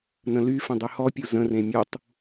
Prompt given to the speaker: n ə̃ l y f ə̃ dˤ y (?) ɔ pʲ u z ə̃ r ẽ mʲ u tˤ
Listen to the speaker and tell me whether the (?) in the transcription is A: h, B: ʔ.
A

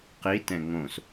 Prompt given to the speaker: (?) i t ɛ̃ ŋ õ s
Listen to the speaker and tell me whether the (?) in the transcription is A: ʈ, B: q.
B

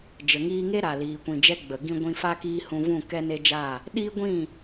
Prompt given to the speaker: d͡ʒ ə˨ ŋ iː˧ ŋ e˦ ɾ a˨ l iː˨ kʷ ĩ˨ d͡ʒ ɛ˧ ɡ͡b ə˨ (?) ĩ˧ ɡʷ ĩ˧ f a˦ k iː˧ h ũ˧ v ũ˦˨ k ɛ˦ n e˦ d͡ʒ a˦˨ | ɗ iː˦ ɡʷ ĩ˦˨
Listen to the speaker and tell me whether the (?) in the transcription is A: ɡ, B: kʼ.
A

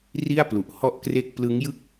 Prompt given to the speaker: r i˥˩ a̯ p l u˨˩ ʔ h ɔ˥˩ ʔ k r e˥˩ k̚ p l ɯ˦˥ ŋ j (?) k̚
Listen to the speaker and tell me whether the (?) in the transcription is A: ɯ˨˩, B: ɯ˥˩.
B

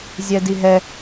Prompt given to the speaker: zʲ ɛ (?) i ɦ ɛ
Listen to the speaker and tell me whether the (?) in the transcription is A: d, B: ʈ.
A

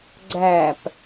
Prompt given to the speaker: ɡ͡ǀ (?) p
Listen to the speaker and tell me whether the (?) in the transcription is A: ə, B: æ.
B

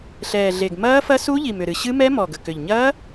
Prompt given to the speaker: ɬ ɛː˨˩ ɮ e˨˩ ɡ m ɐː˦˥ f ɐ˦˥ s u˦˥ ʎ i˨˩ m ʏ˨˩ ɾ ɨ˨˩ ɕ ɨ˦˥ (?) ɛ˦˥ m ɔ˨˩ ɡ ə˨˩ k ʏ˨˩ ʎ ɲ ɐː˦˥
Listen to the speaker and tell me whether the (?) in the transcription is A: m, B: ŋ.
A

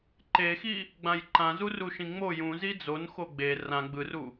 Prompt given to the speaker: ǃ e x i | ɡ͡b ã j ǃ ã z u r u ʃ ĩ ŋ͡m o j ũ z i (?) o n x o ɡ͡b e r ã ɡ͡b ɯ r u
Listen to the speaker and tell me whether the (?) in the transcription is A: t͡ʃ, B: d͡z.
B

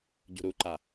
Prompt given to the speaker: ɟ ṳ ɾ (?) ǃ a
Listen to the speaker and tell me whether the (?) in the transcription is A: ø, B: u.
B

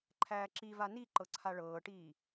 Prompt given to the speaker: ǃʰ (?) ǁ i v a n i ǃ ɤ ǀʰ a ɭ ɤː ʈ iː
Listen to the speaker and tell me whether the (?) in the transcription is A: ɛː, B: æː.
B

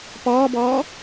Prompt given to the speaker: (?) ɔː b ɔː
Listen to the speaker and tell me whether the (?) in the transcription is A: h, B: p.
B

